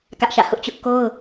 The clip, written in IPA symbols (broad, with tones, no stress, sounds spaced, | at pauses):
k ä˦ ʔ ʃ ä̰˦˨ h ʊ˦ ʔ t͡ɕ ʊ˦ ʔ k o˦ ʊ̯